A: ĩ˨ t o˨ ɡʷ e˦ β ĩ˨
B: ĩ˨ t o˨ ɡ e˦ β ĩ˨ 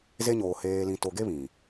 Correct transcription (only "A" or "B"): B